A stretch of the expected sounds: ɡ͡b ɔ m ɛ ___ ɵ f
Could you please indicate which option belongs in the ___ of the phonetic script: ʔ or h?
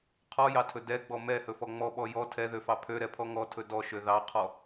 h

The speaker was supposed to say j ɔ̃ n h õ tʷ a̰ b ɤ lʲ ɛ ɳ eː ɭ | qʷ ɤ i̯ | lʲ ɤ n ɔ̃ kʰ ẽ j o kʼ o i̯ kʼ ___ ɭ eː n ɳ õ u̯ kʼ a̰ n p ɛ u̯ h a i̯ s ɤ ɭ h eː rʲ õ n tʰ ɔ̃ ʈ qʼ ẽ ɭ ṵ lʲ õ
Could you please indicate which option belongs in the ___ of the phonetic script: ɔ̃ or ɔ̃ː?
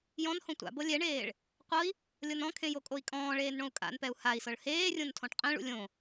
ɔ̃ː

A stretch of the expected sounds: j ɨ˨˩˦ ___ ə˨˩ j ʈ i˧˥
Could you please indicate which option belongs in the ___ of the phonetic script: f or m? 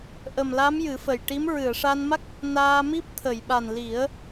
f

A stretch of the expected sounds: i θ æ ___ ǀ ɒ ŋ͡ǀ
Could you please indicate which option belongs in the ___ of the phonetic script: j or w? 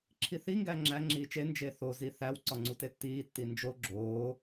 w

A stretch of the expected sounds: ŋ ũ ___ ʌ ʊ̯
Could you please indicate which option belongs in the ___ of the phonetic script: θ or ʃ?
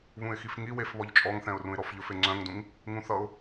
θ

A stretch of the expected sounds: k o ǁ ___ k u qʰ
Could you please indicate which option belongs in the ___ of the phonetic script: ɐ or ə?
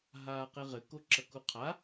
ɐ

